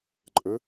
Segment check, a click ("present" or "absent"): present